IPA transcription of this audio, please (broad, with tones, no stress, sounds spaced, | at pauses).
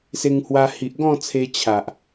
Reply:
s e˧ ŋ h w a˧ h i˨ ʔ ɡ ɔ̃˥˧ t͡sʰ e˧ t͡ɕʰ a˨ ʔ